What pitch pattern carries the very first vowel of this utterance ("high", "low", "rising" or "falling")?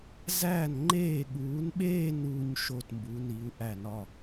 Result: falling